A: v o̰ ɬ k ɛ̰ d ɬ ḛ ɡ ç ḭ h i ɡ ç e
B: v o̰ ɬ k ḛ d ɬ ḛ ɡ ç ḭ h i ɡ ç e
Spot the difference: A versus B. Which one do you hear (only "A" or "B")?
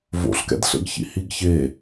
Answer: A